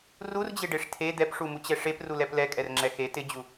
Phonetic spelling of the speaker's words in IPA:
r u r d͡ʑ e ɖ e ʂ tʰ e d̪ ɛ p ʂ u m u t͡ɕ ɛ ʂ e p r u l ɛ p l ɛ kʼ ɛ r ŋ͡ǁ ɛ x e t ɪ d͡ʑ u

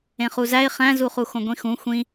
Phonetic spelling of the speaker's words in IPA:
ẽ χ u z æ ɪ̯ χ æ̃ z u χ u x õ ɡʷ ĩ x ũ xʷ ĩ

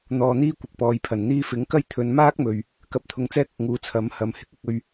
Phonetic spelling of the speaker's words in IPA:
n̪ ɔː˨ n̪ iː˥ kʷ ɪ˨ k̚ p ɔː˨ j pʰ ɐ˨˩ n n̪ iː˧ f ɪ˨˥ ŋ k ɐ˥ j t̪ʰ ɵ˨˧ n m aː˥ k̚ m ɵ˨ ɥ | k ɐ˧ p̚ t̪ʰ ʊ˨˧ ŋ t͡s ɛː˥ k̚ ʊ˨ k̚ ŋ uː˨˥ t͡sʰ ɐ˨˥ m h ɐ˨ m h ɪ˧ k̚ ɪ˧ k̚ ɵ˧ ɥ

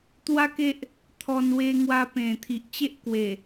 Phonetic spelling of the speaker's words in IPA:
t̪ w a˦ k e˦ ʔ | t̪ʰ ɔ˧ n w e˧ ŋ w a˧ p ẽ˨˩ t̪ʰ i˨ ʔ t͡ɕ e˦ ʔ k w e˨˩

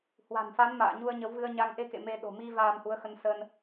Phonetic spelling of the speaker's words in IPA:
h w a̤˨˩ n f a˨˦ n m a̰ː˧˨ ɲ u˧ ə̯ ɲ ə˨˦ w v ɨ˧ ə̯ ɲ a˧ ŋ ʔ e˧ k ḛ˧˨ m e˧ ɗ o̤˨˩ m i˧ v aː˧ m h u˨˦ ə̯ x ə˧ n s ə˧ n

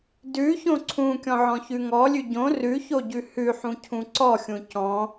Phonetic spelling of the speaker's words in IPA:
d ʉ ç õ ǀʰ ũ kʲ ɔ̃ ʕ ɔ̃ ç ʉ ŋ ɔ lʲ ʉ ɟ õ r ʉ ç o ɟ ʉ h ʉ ħ ũ cʰ ũ ǀ ɔ xʲ ũ c ɔ̃

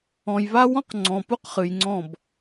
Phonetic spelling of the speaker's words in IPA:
ɔ̃˨ j β a˦ w ɔ̃˦ q ŋ͡ǀ ɔ̃˨ p u˦ q χ ɨ˨ j ŋ͡ǀ ɔ̃˦˨ b

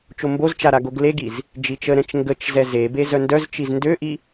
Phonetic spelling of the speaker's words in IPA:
t͡ʃ o m b o z t͡ʃ a ɾ a ɡ o ɡ l e ɡ i z | d͡ʒ i t͡ʃ ə ɾ ɛ̃ t͡ʃ ŋ ɡ ə t͡ʃ z ɛ z e b e z œ n d œ z t͡ʃ i z n d ø ʔ i

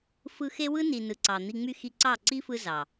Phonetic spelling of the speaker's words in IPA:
f ɯ˧ x e˦ w ɯ˦ n i˨ n ɯ˨ ǀ ɑ˨ n̪ i˧ ŋ͡m y˦ x i˧ ǀ ɑ˦˨ ǀ i˦ f ɯ˧ z ɑ˨

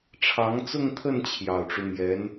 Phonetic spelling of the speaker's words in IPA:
ʈ͡ʂʰ ɑ˧˥ ŋ t͡s ʊ˥˧ ŋ t̪ʰ ə˥˩ n t͡ɕʰ j ɑ˨˩ ʊ̯ ʈ͡ʂ u˦ m j ɛ˧˥ n

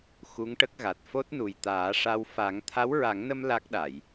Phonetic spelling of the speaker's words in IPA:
x u˧˥ ŋ ʈ ə˦˥ k̚ ɣ a˨˩ t̚ f o˦˥ t̚ n u˨˩ j t̪ aː˨˩˦ ʂ a˧ w f a˨˩˦ ŋ t̪ʰ a˧˥ w ɹ a˨˩˦ ŋ n ə˧ m l a˦˥ k̚ ɗ a˨˩˨ j

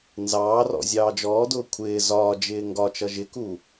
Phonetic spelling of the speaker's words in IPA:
n z ɑː r ɔ̰ zʲ ɑː d͡ʒ ɔː d ʊː kʷʰ ɪː z ɒː d͡ʒ ɪː ŋ ɡ ɒ t͡ʃ ʌ ʒ ɪ k u

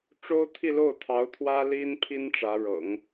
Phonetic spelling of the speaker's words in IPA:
ʈ͡ʂ o˥ ʊ̯ t̪ʰ i˥˧ l o˥˩ ʊ̯ t̪ʰ ɑ˧˥ ʊ̯ t̪ʰ w ä˥ l i˥ n pʰ i˥ n ʈ͡ʂ ä˧˥ ɻ ɤ̰˨˩˦ ŋ

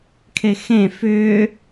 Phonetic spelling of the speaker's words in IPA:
kʰ e x ẽ f ʏː

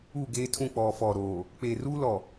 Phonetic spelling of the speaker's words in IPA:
u˦˨ ɡ eː˦ tʰ ũ˦˨ k͡p ɔ˨ f ɔ˨ ɾ oː˨ | k͡p eː˨ r uː˦ l ɔ˨

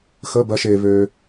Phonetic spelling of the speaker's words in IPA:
x ə˧˥˧ b ɜ˨˥ ʃ e˨ β ø˨

